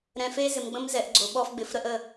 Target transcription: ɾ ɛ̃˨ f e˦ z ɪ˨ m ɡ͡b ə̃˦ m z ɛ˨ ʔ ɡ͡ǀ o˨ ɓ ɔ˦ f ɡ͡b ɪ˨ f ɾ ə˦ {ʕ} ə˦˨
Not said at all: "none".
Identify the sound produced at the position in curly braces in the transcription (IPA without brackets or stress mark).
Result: ʔ